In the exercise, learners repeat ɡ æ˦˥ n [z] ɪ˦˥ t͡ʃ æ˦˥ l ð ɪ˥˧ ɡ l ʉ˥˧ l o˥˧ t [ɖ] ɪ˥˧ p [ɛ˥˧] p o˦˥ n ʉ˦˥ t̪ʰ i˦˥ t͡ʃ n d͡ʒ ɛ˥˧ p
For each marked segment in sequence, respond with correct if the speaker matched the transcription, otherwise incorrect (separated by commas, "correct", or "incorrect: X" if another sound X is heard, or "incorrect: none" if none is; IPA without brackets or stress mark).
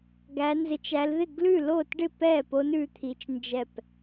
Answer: correct, correct, correct